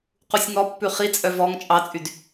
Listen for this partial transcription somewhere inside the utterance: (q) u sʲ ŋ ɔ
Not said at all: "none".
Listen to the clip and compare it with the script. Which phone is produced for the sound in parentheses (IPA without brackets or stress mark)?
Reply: q